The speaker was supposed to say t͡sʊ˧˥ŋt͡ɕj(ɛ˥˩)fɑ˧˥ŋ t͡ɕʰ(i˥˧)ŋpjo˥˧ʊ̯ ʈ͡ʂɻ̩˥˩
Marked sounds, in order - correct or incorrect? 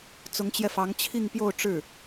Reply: incorrect: ɛ˧, correct

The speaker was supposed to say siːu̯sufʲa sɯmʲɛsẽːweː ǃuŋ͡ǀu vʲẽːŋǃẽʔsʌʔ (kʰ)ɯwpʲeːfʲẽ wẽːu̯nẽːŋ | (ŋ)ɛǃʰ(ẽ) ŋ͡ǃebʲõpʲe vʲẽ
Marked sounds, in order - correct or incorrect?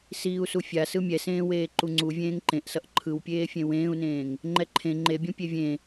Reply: incorrect: ǃʰ, incorrect: ŋ͡ǃ, correct

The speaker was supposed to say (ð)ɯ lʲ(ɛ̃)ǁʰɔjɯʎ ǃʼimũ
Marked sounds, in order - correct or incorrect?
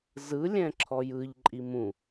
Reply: incorrect: z, correct

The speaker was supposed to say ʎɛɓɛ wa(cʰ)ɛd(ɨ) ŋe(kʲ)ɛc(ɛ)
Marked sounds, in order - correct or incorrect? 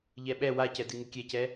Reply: incorrect: c, correct, correct, correct

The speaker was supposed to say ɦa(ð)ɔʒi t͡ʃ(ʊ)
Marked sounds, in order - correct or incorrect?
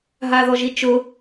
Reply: correct, correct

